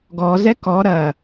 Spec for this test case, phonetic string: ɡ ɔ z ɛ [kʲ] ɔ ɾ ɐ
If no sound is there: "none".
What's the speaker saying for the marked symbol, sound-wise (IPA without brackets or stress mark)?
k